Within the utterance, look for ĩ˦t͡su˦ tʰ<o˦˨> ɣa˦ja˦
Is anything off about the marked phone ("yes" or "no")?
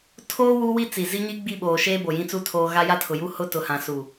yes